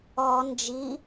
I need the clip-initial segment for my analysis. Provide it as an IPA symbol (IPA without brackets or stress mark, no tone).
ɔ